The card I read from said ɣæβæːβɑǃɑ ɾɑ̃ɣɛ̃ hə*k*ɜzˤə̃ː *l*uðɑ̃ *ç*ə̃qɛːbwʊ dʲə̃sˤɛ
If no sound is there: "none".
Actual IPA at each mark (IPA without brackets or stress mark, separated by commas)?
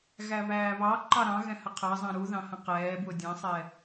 qʰ, ɾ, h